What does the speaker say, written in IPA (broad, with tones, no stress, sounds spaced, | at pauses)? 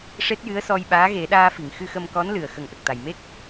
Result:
ʂ e˦˥ t̚ j ɨ˧˥ ə̯ s ɔ˧ j ɓ aː˧˥ ɣ e˨˩˦ ɗ aː˧ f i˨˩˨ ŋ x ɨ˧ x ə˧ m k ɔ˧˥ n l ɨ˨˩ ə̯ x ə˨˩˦ ŋ ʔ ə˨˩ k̚ t̪ a˨˩ j m e˦˥ k̚